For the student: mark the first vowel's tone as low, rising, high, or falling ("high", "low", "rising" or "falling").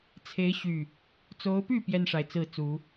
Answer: rising